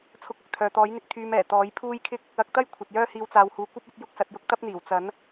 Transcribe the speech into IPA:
t͡sʰʊ˧k̚ʊ˨k̚ t̪ʰœː˨t̪ɔː˨˥jn̪ɪ˧k̚ t̪ʰyː˧mɛː˨˩ t̪ɔː˨˥jpʰuː˥jkʰɪ˥k̚ | ɐ˨˥k̚t̪ɐ˥j kʷʰɐ˨t̚jœː˥hiː˧w t͡saː˨whuː˨ kʷɐ˥p̚ɐ˨˥t̚ jʊ˥k̚sɐ˨˥t̚jʊ˥k̚ t̪ɐ˥p̚n̪iː˨˩w t͡sɐ˨˥n

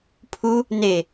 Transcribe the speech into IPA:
pʰu | ne

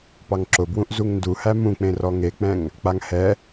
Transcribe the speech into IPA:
pɑŋǁʊbwũʔ zuŋnduhæ mũk͡pẽrɔ ŋek͡pɛ̃ŋ | k͡paŋhɛ

